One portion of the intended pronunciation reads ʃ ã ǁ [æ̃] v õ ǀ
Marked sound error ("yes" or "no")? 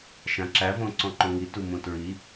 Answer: yes